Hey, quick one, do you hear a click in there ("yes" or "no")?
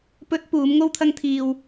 no